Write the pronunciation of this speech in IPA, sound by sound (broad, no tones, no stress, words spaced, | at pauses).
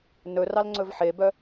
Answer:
nɵrɑlŋ͡ǀɵv ħebœ